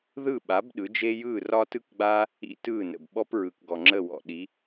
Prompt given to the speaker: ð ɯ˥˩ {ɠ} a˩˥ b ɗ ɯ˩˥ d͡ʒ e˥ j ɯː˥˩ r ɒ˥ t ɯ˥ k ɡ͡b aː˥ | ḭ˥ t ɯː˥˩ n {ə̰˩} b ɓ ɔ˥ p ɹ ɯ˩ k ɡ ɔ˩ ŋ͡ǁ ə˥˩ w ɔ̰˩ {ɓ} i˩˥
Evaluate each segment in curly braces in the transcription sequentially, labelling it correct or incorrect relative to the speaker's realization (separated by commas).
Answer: incorrect, correct, incorrect